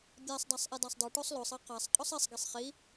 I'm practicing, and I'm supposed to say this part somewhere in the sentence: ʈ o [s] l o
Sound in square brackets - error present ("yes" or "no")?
yes